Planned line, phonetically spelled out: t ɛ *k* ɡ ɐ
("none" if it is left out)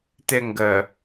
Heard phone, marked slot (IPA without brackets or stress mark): ŋ